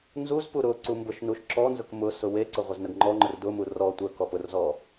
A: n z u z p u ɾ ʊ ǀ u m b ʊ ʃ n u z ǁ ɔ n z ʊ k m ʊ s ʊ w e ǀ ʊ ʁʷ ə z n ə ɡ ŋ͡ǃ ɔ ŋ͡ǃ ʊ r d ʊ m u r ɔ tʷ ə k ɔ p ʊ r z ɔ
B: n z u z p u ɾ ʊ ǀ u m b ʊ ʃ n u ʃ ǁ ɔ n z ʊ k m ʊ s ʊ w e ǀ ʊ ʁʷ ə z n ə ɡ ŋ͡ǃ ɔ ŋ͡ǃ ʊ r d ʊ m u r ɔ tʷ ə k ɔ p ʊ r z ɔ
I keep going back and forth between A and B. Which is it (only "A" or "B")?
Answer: B